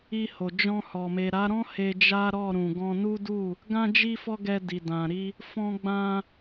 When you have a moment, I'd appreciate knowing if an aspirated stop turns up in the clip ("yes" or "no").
no